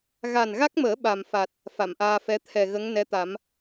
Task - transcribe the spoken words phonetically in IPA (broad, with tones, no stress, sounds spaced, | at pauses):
ɣ a˨˩ n ɣ a˦˥ k̚ m əː˨˩˦ ɓ a˨˩ m f a˨˩ t̚ | f a˨˩˨ m ʔ aː˧ f ɛ˧˥ t̪ʰ ɛ˨˩ ɣ ə˧˥ ŋ n ɛ˧˥ t̪ a˨˩˦ m